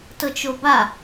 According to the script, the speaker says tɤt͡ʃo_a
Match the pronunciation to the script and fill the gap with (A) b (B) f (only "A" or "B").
A